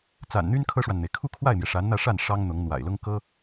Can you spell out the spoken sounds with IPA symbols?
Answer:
t͡s a̰˨˩ n n̪ y˥ n kʰ ɤ˥ ʂ w a˨ n n̪ e˩ ɪ̯ kʰ u˥˧ kʰ w a˥˩ ɪ̯ m j ɛ˩ ʂ a˧˥ n n̪ ä˥˧ ʂ a˥˩ n ʂ ɑ˥ ŋ n̪ ʊ˧˥ ŋ n̪ w a̰˨˩ ɪ̯ l ʊ˥ ŋ k ɤ˥

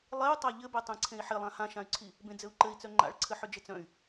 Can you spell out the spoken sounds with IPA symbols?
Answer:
lˠ e u̯ tˤ a ʎ ɘ b e tˤ ẽ ǀʰ ẽ i̯ ħ ɪ lˠ ã h ã ʃ ã y̯ ǀʰ i | b ẽ d͡z ɘ u̯ ǃ ɘ i̯ t͡s œ ŋ͡ǃ a̰ ɭ ǀʰ ɘ ħ ʏ d͡ʒ ɘ t͡s œ̃ y̯

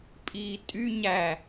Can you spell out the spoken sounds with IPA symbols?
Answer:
pʼ iː tʼ y ɲ æ

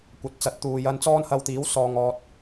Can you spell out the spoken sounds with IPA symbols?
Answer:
kʷ ɐ˨˥ t̚ t͡s ɐ˨˥ t̚ t̪ uː˨ j ɐ˧ n t͡s ɔː˥ n h ɐ˧ w t̪ iː˨˥ w s ɔː˨ ŋ ɔː˨ t̚

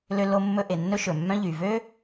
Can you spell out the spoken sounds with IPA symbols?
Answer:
l ø˧ l o˧ mː ɵ˧ ʔ e˨ nː ɵ˦ ʃ ɵ˨ mː œ̃˦ ʎ y˨ v ø˦

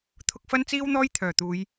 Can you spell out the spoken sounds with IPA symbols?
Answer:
t̪ʰ ʊ˧ k̚ f ɐ˥ n t͡s iː˥ w n̪ ɔː˥ j t̪ʰ œː˨˩ t̪ uː˨˧ j

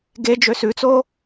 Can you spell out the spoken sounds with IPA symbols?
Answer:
ɡ e d͡ʒ ø s ʉ t͡s o

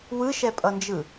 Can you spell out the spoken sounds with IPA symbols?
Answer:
w ɯ ʃ ɛ pʼ ʌ n d͡ʒ ɯ

